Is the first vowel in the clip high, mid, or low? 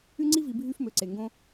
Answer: high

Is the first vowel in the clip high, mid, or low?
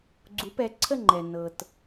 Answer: high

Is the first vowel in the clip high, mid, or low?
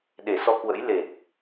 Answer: mid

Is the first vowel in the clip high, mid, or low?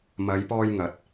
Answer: low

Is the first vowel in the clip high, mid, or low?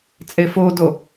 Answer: mid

